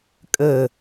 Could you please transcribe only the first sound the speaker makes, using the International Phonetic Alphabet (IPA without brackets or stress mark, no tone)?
kʼ